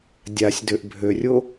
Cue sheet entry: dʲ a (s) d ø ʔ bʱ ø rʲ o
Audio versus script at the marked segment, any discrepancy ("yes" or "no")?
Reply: yes